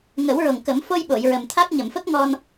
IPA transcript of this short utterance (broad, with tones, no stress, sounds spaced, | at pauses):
ŋ ə˨˩˦ w ɹ o˨˩ ŋ k ə˨˩˦ m f o˧ j ɓ o˨˩˨ j ɹ ə˨˩ m t̪ʰ a˦˥ k̚ ɲ ə˨˩˨ m f ə˦˥ k̚ ŋ ɔ˧ n